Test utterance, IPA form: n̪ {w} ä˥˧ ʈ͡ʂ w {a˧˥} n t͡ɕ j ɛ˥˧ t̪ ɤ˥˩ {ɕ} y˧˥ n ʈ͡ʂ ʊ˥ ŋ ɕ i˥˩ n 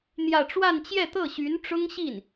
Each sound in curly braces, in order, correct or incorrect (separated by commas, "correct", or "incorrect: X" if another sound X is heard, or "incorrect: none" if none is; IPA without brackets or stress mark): incorrect: j, incorrect: a˥˧, correct